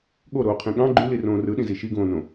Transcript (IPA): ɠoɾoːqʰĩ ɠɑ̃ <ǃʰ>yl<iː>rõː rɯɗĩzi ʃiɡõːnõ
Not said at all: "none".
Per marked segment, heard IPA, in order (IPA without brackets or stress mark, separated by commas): ɡ͡ǃ, i